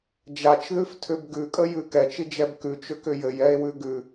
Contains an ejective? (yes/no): yes